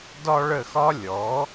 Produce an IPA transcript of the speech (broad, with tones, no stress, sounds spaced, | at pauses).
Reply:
d ɒ˥ ɭ ə˥˧ x ɒ˥ lʲ ɔ˨˥